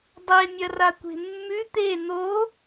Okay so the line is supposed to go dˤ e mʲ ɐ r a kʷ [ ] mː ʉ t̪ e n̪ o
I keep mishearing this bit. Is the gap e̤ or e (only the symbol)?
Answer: e̤